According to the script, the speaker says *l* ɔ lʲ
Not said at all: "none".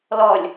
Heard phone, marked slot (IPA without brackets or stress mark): l